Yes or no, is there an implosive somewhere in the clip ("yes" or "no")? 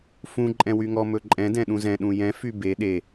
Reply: yes